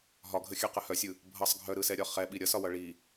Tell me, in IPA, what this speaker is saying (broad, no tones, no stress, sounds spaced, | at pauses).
ɦ ɒ ɡʱ ə xʲ œ q ə h œ sʲ ɯ | bʱ ʌ sˤ ɡʱ œ ɾ ɯ s ɛ ɾʲ ɒ χ ɛ ɓ i ɾʲ ʌ s ɒ w ʌ ɭ i